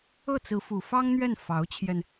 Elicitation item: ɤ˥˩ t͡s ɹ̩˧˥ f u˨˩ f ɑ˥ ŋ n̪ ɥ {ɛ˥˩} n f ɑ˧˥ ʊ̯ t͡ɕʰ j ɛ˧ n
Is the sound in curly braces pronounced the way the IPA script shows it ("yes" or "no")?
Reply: yes